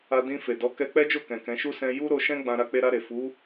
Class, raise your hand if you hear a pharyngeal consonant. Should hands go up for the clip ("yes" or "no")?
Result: no